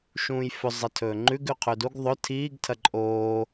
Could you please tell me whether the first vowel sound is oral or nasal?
nasal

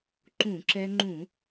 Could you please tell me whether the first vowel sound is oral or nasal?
nasal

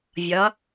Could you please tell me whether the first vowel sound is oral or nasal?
oral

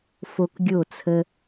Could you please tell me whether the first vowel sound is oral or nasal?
oral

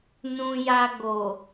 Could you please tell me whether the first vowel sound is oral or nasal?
nasal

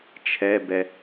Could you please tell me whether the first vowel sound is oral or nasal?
oral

